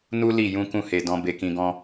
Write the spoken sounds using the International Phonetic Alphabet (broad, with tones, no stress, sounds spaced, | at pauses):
n u˦ l i˦˨ j ũ˧ k ũ˦ h e˧ d ɔ̃˧ b e˧ k ĩ˧ ɡ ɔ̃˦